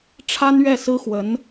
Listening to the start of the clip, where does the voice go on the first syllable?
high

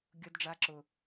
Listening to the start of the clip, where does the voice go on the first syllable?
high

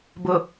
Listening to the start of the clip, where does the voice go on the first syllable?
low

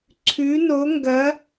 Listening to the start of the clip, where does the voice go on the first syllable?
rising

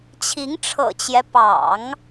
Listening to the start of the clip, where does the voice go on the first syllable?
rising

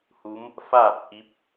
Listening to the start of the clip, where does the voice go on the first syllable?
rising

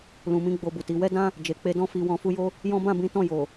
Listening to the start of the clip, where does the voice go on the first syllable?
low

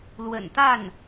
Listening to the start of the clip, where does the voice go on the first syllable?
low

